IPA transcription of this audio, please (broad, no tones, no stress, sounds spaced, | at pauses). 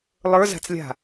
lˠ ə˞ z a̤ t͡s lʲ a̤